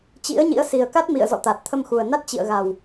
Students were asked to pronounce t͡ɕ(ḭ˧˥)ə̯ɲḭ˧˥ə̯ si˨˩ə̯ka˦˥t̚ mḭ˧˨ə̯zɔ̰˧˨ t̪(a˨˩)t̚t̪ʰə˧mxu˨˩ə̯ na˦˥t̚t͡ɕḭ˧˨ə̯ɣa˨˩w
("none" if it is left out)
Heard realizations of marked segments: ḭ˧˥, a˨˩

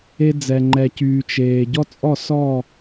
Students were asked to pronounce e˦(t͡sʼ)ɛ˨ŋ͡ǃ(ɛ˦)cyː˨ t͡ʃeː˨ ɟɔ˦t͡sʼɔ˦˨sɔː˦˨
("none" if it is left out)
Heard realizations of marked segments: d͡z, ɛ˨

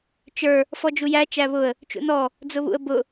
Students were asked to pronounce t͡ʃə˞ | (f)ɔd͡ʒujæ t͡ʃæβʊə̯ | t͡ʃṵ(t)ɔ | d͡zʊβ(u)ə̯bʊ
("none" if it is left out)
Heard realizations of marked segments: f, n, ṵ

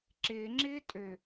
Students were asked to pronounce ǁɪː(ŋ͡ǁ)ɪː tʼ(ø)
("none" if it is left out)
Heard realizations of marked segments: ŋ͡ǁ, ø

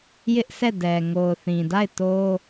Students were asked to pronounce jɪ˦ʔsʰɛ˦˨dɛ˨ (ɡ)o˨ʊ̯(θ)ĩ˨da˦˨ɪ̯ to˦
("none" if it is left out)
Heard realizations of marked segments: ŋ, θ

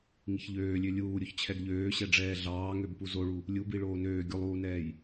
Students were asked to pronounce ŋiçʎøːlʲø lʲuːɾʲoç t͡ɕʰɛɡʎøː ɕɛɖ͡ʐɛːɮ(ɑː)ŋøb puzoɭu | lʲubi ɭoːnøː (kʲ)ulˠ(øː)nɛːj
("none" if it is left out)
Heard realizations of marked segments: ɑː, ɡʲ, uː

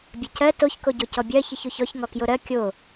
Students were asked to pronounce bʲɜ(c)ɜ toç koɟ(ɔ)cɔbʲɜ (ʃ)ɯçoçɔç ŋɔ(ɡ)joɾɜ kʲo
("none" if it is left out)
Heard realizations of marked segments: c, o, ç, k

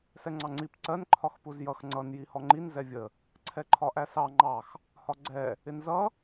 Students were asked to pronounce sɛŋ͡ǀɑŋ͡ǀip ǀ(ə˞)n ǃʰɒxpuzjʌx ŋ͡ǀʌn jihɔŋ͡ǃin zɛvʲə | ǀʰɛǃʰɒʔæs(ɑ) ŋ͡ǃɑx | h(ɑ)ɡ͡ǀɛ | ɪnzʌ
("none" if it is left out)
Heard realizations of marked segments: ɜ, ɑ, ɒ

